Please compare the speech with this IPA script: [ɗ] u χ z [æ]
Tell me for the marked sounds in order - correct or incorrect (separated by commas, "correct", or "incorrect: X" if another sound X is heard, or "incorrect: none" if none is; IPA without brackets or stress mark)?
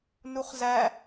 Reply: incorrect: n, correct